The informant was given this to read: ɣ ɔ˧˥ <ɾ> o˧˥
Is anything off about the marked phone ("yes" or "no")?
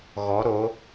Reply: no